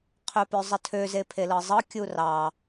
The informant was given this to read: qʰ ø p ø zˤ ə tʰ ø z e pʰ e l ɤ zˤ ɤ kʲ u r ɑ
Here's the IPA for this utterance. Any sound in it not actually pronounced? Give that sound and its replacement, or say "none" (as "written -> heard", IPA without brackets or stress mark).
none